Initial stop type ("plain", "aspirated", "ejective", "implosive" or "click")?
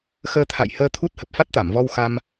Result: aspirated